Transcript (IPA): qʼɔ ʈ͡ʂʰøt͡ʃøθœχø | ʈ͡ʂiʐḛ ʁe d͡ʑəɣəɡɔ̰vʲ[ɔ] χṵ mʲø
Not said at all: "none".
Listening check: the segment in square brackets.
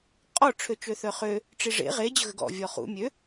ɔ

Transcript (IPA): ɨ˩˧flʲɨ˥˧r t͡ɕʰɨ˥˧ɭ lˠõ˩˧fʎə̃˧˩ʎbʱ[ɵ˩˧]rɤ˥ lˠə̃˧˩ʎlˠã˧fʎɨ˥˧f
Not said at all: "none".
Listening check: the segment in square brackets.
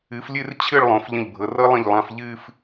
ɤ˩˧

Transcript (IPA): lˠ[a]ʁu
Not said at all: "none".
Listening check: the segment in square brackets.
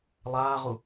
aː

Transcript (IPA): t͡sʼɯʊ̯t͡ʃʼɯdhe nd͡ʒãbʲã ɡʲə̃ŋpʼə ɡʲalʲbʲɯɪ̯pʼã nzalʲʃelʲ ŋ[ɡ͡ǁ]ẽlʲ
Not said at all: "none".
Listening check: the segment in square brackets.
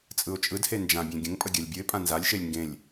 ɡ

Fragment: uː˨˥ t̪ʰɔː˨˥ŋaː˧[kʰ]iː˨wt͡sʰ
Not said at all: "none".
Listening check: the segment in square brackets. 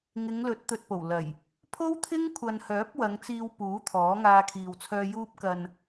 kʰ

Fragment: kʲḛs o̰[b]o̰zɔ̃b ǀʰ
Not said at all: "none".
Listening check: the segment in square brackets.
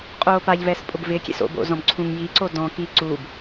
b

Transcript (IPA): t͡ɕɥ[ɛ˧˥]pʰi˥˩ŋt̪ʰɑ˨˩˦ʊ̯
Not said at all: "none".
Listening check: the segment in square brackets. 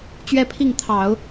ɛ˥˧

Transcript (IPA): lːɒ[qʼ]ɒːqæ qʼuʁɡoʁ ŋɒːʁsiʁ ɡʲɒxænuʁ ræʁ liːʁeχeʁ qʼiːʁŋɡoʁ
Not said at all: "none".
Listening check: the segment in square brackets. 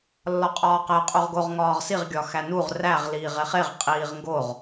qʼ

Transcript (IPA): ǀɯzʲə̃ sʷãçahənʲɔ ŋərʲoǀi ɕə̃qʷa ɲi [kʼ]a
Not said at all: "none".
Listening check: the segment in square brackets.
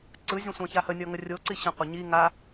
ŋ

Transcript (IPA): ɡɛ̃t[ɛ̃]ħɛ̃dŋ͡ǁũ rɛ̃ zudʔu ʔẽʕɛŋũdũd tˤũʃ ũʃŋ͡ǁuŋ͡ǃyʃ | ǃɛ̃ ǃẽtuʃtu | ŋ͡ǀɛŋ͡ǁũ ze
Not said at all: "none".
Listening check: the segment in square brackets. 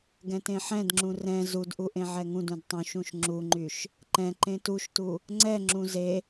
ẽ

